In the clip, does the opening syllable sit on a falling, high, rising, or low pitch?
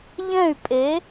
falling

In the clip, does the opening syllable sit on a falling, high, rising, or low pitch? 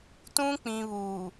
high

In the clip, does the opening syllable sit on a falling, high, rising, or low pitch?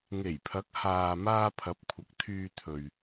low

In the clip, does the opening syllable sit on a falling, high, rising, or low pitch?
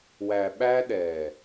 low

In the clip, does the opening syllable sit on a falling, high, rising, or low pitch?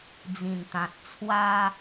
low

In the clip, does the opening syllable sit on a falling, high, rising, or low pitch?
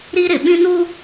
high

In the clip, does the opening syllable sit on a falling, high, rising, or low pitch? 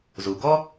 low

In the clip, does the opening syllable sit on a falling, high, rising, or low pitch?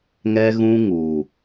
high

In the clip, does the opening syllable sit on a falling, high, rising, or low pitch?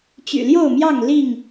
low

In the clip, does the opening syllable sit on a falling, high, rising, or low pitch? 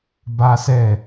high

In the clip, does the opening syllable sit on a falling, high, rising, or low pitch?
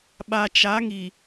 low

